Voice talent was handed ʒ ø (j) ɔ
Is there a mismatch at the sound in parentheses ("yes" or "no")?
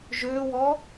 yes